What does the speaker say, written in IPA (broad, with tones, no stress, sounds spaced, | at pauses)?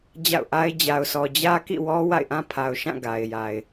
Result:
d͡ʑ a̰˦˨ ʊ̯ ʔ a˦ ɪ̯ d͡ʑ a˨ ʊ̯ sʰ ɔ˨ d͡ʑ ä˦ k ḭ˦˨ w ɔ˦ w a̰˦˨ ɪ̯ ʔ ã˦ pʰ a˨ ʊ̯ ʃ ã˦˨ ɡ a˨ ɪ̯ j a˨ ɪ̯